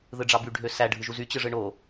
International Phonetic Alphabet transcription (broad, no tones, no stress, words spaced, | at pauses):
ðɯɖ͡ʐɑby ɖʱøsæ ɖʱɯʒuzy t͡ɕɯʐɯɳo